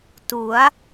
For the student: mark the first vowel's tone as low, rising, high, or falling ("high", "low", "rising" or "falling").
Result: rising